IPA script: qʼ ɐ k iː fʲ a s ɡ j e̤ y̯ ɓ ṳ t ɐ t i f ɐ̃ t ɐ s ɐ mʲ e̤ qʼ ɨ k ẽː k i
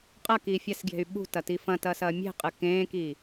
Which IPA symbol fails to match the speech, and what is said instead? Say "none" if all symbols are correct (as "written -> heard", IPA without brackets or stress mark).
none